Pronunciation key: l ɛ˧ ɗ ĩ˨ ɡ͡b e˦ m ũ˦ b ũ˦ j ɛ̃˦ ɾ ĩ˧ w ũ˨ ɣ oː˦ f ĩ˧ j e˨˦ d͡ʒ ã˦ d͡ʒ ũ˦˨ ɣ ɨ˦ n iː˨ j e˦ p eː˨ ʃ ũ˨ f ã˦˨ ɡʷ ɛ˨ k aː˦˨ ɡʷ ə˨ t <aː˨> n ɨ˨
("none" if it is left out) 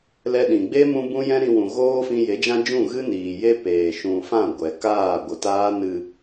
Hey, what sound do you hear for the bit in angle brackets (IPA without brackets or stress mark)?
aː˦